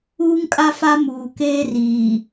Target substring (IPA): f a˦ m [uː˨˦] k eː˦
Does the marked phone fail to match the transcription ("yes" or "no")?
yes